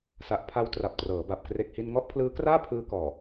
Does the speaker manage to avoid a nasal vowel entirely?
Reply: yes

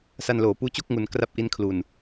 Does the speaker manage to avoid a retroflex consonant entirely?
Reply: yes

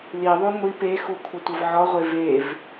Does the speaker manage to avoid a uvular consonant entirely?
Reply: no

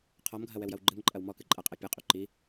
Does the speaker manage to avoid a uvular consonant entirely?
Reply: no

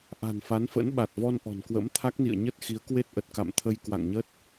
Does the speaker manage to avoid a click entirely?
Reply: yes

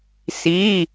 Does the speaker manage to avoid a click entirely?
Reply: yes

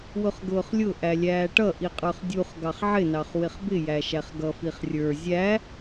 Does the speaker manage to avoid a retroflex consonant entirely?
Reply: no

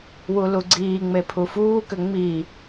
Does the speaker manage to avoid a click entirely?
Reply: no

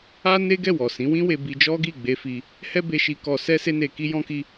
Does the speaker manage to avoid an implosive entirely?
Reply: yes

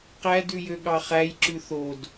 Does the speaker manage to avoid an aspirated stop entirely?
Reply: yes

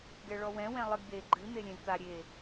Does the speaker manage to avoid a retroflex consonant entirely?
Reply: no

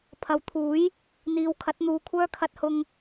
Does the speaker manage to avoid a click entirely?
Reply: yes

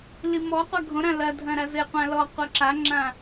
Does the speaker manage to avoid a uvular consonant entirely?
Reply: no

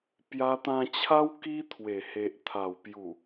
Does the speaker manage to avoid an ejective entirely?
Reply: yes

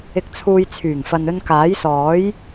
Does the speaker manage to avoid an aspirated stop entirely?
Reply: no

